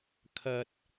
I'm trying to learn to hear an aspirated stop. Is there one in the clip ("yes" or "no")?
yes